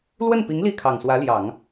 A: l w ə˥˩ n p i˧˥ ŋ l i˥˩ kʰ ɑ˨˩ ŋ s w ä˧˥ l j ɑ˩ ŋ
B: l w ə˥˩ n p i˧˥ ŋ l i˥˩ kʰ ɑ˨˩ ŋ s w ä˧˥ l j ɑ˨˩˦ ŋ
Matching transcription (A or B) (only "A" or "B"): B